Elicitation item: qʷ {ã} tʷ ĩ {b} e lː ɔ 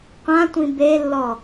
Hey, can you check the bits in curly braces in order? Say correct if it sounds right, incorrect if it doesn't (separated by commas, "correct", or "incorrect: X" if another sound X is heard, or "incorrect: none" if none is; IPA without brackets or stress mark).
correct, correct